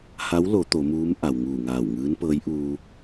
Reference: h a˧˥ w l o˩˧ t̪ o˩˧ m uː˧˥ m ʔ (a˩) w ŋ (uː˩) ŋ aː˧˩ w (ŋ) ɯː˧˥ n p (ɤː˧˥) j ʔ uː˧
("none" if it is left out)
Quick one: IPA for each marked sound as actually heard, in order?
a˩, uː˧˩, ŋ, ɤː˧˥

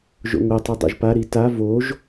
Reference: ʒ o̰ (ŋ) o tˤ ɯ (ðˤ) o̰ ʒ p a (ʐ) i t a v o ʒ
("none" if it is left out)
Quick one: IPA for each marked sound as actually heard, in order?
ŋ, dˤ, ɾ

